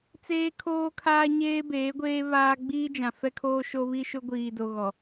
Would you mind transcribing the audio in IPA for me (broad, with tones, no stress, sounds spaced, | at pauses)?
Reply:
t͡s eː˦ kʰ oː˦ kʰ aː˦ ɲ eː˦ b eː˨˦ ɡʷ eː˦ β aː˦ ɡ͡b iː˦ d͡ʒ ã˨ f ɛ˦ kʰ oː˦ ʃ o˦ β i˦ ʃ ʊ˦ ɡʷ iː˨ d o˨ ɣ ɔ˨